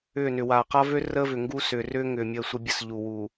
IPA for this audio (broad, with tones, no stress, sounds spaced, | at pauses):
ʏː˦˨ n ʏ˨ w aː˨ q a˦ v ø˦ r əː˦ v ʏ˨ ŋ ɡ u˦ s ʏː˨ r ʏː˦ ŋ ʏː˨ mʲ əː˦˨ sʷ ə˦ bʲ ə˦ s ʎ u˨ w u˨